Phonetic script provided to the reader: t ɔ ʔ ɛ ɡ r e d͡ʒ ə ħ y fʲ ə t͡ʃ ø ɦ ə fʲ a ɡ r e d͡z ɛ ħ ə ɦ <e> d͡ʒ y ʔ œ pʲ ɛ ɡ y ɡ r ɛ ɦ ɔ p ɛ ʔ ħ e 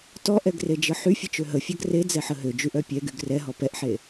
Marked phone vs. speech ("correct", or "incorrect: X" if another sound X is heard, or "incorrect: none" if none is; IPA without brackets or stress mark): incorrect: ø